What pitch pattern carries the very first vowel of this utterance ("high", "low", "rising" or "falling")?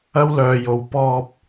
high